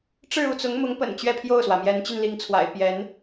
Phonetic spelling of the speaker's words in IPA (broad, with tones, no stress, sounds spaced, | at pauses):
ʈ͡ʂ ɻ̩˥˧ u˥˩ t͡s ʊ˧˥ ŋ m ʊ˧˥ ŋ p ə̰˨˩ n t͡ɕ ɥ ɛ˥˧ pʰ j o˥˩ ʊ̯ s w ä˩ m j ɛ˧˥ n t͡ɕ y˧ n l i˧˥ ŋ t͡sʰ w a̰˨˩ ɪ̯ p j ɛ˧˥ n